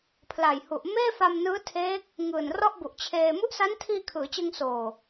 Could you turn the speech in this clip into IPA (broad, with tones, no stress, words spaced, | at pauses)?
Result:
pʰla˨˩jhu˨˩ʔ meː˥˩fa˧mnɯː˦˥tʰeː˦˥k̚ | ŋɯː˨˩nrɔ˥˩ʔbu˨˩ʔt͡ɕʰeː˧ mu˦˥ʔsa˦˥ntʰiː˧ kʰɯː˩˦t͡ɕɯ˧ŋsoː˨˩